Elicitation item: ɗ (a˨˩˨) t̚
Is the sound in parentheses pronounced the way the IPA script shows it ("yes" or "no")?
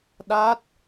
no